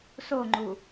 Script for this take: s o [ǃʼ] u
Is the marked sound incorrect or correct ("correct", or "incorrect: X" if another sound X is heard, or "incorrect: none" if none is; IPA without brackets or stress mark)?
incorrect: ŋ͡ǃ